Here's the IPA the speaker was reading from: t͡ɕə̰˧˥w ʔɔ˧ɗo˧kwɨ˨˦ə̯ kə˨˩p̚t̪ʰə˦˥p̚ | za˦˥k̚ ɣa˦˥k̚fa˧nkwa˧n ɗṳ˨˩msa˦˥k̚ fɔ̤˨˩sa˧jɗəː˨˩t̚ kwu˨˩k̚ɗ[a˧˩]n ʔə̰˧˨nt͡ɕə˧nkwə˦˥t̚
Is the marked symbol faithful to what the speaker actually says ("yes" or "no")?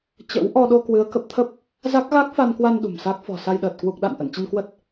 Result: no